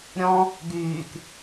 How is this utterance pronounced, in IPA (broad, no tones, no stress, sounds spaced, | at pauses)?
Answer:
ɾʲ ɔ̃ | ɡ yː k